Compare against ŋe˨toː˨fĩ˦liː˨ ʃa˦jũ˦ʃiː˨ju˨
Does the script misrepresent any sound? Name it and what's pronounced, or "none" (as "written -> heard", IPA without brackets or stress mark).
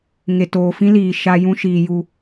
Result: none